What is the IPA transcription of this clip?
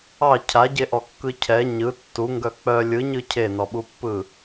ɑ cʰ a ɟ e ʔ ɔ kː ɯ cʰ ɛ ɲ ɯ tː u ŋ ɡ œ k͡p œ lʲ ɯ ɲ ɯ cʰ e n ɔ ɓ u pː ɯ

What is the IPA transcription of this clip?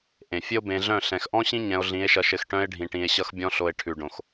ʔ ẽ˨ fʲ ɘ˦ o̯ b ẽ˧ ɮ œ̃˦˨ ɬ ɛ̃˨ x ʔ ɔ̃˦ ɕ ĩ˦ ɲ ɛ̃˧ o̯ ɮ ĩ˨˦ e̯ ʃ ʌ˧ ʃ ɘ˧ x ʈ œ̃˧ e̯ ɖʱ ĩ˨ ʈ ĩ˨ e̯ ɕ ʌ˧ x bʲ ɔ̃˧ ɬ o˨ e̯ ʈʰ ʉ˨ ɖ õ˨ x

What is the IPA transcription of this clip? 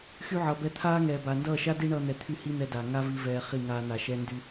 x y˦ ʕ ʌ˨ b ɛ˧ t̪ʰ aː˦ ŋ ɛː˨ b aː˨ n d ʌː˦˨ ʃ a˦ d i˦ ɳ ʌː˧ n̪ ɛ˨ t̪ʰ y˦˨ h i˦ n̪ ɛ˧ d a˨ ŋ a˦ v i˧ v ɛː˧ χ i˦˨ ŋ aː˧ n̪ a˨ ʃ ɛ˦ n d y˦

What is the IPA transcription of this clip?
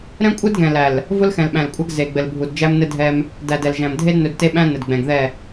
ɾ ɛ̃˦ kʷʼ ɘ˦ d ɡ ɛ̃˨ l æ˨ l | v ʊ˦ l x ɛ̃˨ l ɓ æ̃˨ l kʷʼ æ˦ ɡ z e˨ ɡ͡b ɘ˨ l bʱ u˨ d d͡ʒ æ˦ m n ɘ˦ dʱ ɛ˦ m | d æ˨ d ɛ˨ l ʒ æ̃˨ m dʱ e˦ d n ɵ˨ d t e˦ ɓ æ̃˦ n ɘ˨ d ɡ͡b ɛ̃˨ ɡ ð ɛ˦˨

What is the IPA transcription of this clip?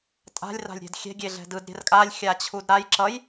tʼ a̤ lʲ r a̤ lʲ ɾʲ ɛ̤ d xʲ ɛ̤ ɡʲ e ɮ ɛ̤ d ɯ d ɾʲ ɛ̤ r kʼ a lʲ xʲ a t͡ɕʰ u d ɾ a j ǁ ʌ j

